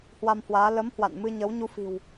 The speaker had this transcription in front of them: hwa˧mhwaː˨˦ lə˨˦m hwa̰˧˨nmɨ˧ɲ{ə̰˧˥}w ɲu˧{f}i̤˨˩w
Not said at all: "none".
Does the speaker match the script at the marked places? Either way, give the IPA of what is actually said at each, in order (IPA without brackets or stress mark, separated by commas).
ə˨˦, f